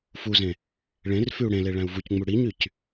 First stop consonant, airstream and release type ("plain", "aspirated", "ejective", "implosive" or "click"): plain